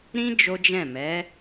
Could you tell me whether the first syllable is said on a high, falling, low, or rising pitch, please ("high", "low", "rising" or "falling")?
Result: high